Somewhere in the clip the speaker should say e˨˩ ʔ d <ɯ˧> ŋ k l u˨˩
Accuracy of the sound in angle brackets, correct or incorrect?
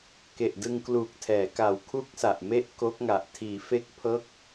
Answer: correct